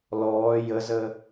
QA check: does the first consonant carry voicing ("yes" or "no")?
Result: yes